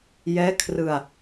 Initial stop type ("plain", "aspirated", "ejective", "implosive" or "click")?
aspirated